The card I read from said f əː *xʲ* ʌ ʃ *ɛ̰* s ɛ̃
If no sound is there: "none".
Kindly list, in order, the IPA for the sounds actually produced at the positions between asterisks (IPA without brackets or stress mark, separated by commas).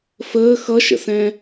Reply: x, ə̰